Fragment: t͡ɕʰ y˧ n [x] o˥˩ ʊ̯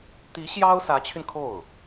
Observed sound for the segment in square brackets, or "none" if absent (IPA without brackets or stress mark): kʰ